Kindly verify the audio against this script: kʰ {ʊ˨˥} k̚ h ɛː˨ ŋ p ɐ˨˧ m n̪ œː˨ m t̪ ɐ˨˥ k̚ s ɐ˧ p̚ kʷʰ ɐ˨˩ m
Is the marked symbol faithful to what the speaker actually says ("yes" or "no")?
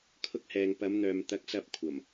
no